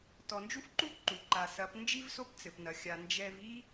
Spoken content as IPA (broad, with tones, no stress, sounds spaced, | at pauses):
t ɔ˨ n d͡ʒ u˦ f ǃ u˦ ǃ u˨ ǃ a˨ s ɐ˨˦ p n d͡ʒ i˦ v s o˦ p t͡s ɘ˨ p n ɐ˨ xʲ a˨ n d͡ʒ ɛ˦ v i˦